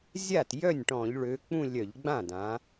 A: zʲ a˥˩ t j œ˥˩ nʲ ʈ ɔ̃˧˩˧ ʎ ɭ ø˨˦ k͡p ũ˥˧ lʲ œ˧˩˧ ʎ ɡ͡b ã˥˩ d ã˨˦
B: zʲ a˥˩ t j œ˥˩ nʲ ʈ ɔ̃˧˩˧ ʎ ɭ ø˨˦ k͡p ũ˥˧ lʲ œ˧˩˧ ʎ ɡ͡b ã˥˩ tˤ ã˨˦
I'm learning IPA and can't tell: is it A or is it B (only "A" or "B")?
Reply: A